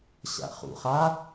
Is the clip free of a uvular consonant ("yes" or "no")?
no